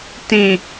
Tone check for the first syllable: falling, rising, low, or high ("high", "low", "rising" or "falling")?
low